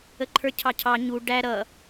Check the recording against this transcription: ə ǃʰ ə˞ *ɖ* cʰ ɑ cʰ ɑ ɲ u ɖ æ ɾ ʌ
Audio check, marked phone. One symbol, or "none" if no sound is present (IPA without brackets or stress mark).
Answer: none